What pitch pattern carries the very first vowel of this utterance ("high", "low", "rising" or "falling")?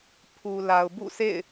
low